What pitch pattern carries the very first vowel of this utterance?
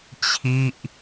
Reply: falling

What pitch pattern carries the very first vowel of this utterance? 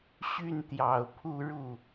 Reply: falling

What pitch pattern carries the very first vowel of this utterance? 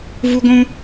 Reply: high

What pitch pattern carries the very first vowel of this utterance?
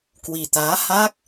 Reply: low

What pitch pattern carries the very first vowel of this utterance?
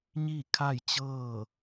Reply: falling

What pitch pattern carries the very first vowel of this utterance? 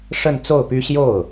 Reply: falling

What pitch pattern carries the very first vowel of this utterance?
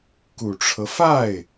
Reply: low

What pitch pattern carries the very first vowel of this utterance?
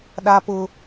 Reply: high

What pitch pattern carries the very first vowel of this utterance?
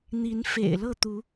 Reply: rising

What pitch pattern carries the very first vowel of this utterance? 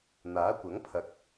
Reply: rising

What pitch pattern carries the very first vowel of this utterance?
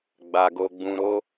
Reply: low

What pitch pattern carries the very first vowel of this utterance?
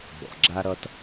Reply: low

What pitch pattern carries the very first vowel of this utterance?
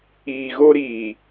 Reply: low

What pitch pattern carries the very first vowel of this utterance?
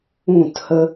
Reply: falling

